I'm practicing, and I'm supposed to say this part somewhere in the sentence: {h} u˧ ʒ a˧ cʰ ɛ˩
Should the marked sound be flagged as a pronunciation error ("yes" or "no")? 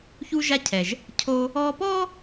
yes